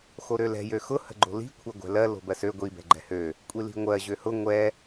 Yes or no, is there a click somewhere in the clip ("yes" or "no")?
yes